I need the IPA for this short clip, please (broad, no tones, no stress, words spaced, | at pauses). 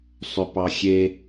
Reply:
sˤʏpɑxʲe